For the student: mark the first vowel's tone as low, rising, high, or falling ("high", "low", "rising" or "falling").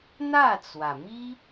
falling